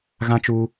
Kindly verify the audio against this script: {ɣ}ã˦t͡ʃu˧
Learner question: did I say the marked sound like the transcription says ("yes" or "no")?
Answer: yes